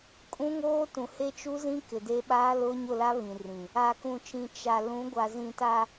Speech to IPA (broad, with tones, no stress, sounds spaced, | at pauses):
kʼ ũ˦ ŋ oː˦ t ũ˨ h e˦ t͡ʃ u˦ z ĩ˦ k ɪ˨ d e˦ ɓ aː˦ l ʊ˦ ɲ ʊ˦˨ l a˦ β ĩ˨ r ĩ˨ | a˨ k ũ˨ t͡ʃ ĩ˨ t͡ʃ a˨ l ũ˨˦ ɡʷ a˨ z ĩ˨ t a˨